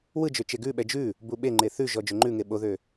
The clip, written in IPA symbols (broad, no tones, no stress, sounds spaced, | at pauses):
w ɯ d͡ʒ ø t͡ʃ e ɡ ʉ ɓ ɛ d͡ʒ ʉ | b u ɓ e ŋ͡ǃ e θ ʉ ʒ ɔ d͡ʒ ø ŋ͡ǃ ʉ ŋ e ɓ o ð ø